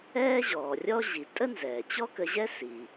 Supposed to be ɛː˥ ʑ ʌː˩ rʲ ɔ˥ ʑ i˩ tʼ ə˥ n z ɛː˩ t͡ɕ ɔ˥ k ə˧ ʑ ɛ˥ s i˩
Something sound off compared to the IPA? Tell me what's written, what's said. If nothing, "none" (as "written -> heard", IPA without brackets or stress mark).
ʌː˩ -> ɔː˩